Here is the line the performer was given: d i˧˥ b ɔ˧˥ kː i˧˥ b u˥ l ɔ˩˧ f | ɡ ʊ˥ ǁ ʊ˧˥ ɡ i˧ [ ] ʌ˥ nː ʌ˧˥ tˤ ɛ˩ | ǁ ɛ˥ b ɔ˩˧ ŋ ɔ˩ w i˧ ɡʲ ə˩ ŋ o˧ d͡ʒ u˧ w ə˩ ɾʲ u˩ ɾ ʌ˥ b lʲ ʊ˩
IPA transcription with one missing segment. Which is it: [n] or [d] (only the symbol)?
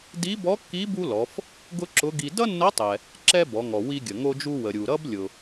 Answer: d